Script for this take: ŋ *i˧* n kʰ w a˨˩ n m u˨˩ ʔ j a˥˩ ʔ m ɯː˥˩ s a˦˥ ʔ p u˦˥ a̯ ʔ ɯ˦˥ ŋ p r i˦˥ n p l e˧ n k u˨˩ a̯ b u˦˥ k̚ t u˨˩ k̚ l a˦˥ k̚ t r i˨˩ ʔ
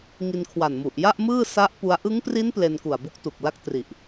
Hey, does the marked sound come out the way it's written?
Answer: yes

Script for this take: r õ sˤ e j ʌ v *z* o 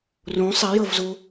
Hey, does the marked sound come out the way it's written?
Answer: yes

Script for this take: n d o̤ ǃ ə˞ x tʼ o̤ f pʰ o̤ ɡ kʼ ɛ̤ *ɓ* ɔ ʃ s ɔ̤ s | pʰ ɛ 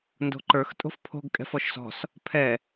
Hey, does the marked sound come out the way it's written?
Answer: no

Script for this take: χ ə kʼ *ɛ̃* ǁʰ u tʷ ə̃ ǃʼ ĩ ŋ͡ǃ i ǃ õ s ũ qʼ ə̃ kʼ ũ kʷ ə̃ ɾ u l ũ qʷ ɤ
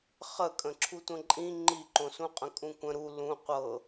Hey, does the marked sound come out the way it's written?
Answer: no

